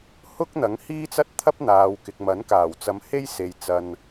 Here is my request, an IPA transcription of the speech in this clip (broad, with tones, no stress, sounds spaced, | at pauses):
h ʊ˥ k̚ n̪ ɐ˨˥ ŋ h iː˥ t͡s ɐ˥ t̚ t̪ʰ ɐ˥ p̚ n̪ aː˨ w k ɪ˨ k̚ m ɐ˨˥ n k aː˨˩ w t͡s ɐ˨˧ m h e˥ j s e˨ j t͡s ɐ˧ n